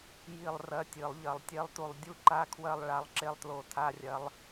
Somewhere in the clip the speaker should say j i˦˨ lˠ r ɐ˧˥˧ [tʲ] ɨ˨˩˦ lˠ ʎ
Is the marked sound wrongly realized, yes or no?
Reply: no